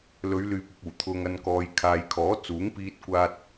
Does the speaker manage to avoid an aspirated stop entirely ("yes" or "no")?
no